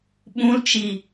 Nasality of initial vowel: nasal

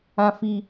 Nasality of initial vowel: nasal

